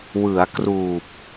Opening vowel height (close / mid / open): close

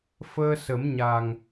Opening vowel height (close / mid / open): mid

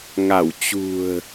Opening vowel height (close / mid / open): open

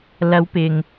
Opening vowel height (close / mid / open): open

